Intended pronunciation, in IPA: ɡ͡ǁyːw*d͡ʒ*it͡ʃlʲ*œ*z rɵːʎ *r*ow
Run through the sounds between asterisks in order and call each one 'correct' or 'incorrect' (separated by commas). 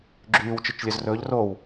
incorrect, correct, correct